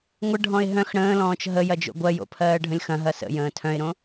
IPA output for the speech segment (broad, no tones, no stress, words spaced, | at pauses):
ŋʷəɖʱɔ̃ɪ̯ ɦœ̃x ɽə̃ːlɔ̃ːt͡ʃ ɦə jɐd͡ʒo̰ɡʷɜjo̰ pʰɜːɖʱə̃lʲxɐ̃ɦɐ sə̰jə̃ː tʰœ̃ɪ̯ɾõ